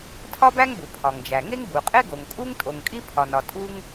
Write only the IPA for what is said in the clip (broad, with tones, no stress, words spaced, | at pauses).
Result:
tʰɒ˥bæ˥ŋbu˩ pʰɒ˩ŋd͡ʒæ˩ŋe˥ŋ bu˩qʼe˥ɡo˩ŋ kʼu˥ŋ tʼo˩ŋkʼi˥pʰɒ˩nɒ˩ tʼu˥ŋ